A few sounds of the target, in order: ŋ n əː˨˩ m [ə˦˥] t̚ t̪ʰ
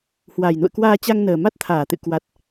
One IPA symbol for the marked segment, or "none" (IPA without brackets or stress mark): a˦˥